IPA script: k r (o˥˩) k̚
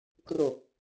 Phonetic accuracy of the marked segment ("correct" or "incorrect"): incorrect